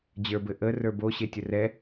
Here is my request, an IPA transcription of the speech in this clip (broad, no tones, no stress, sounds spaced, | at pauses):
d͡ʑ ə˞ b ɘ ʔ ə r ə˞ b o ɕ e tʲ ə r ɛ